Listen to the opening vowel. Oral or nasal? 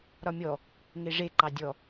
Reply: oral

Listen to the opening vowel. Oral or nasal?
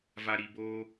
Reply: oral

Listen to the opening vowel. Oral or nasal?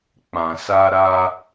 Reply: nasal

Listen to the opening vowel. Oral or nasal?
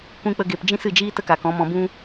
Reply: nasal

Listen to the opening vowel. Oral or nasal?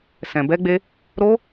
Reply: nasal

